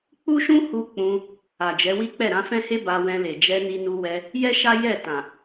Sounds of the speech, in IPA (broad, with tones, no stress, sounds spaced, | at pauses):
k͡p u˦ ʃ ũ˦ h u˧ k͡p ũ˧ | a˨ d͡ʒ ɛ˨˦ w i˦ k͡p ɛ˦˨ ɾ ã˧ f ɛ̃˦ h e˦ b a˧ w ɛ̃˧ l e˨ d͡ʒ ɛ˧ n i˧ n u˧ w ɛ˧ | j ɛ˦ ʃ a˦ j ɛ˦˨ t ã˨